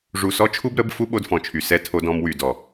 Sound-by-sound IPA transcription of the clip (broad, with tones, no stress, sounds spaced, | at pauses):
ʐ u˨ s ɔ˦ t͡ʃʰ u˦ b ɾ ə˨˦ b f u˦ ɓ o˦ d f ɔ̃˨ t͡ʃʰ y˨ s ɛ˦ tʰ o˦ d ɔ̃˦ m w y˦˨ d ɔ˨